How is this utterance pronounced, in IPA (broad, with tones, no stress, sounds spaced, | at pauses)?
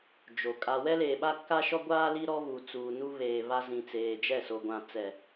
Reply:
d͡ʒ o˨ kʼ a˨ w ɛ˦ l eː˨ ɓ a˦ k a˦ ʃ ɔ˦ ɡʷ aː˦ l i˦ ɾ ɔ˦ β u˨ t͡s uː˨ n u˦ β eː˨ β a˦ z ĩ˨ t͡s eː˨ d͡ʒ ɛ˦˨ s o˨ ɡʷ ã˨ t͡s ɛ˨